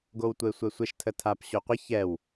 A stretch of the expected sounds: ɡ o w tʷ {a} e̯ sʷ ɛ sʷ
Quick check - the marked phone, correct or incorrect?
incorrect